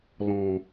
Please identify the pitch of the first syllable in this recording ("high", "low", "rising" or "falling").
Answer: low